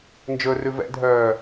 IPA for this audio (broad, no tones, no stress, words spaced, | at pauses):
nd͡ʒɵrʉ vɛ̰dʱœː